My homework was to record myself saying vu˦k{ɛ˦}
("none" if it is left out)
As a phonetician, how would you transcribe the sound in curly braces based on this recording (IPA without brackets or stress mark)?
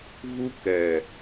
ɛ˨